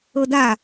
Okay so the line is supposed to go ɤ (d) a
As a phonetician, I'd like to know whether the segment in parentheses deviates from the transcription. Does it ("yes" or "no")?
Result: no